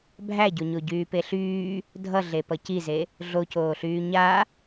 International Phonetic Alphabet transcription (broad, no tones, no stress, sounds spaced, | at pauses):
bʱ æ ɟ o ɲ o ɟ yː p e ɬ yː | dʱ ʌ ɮ e p ʌ c i z e | ɮ o c oː ɬ yː ɲ a